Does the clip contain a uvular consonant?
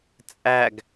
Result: no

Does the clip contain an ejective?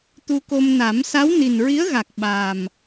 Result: no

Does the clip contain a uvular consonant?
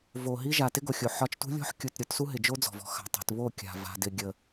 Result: no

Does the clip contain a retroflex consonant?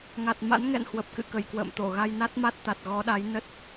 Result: no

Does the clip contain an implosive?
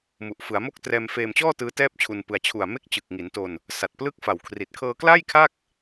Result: no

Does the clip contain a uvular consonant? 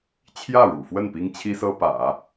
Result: no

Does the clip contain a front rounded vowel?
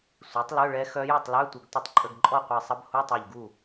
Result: yes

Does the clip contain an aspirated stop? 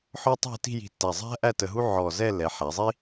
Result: no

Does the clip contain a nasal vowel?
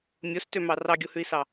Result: no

